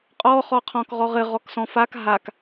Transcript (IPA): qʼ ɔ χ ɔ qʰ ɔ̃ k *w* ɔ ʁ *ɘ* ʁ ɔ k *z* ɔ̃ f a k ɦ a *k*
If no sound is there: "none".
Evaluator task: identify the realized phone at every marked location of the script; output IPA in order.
ʁ, ɘ, s, k

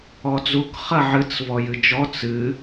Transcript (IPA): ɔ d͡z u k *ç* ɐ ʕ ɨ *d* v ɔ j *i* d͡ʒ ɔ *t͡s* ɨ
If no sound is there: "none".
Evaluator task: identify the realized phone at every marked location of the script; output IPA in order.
χ, t͡s, ɨ, t͡s

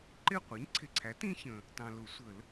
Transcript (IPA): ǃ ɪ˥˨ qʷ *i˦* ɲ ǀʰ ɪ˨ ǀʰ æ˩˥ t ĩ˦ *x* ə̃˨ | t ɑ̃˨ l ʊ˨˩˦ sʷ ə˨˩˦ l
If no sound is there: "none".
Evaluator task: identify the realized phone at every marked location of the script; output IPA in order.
i˩˥, ç

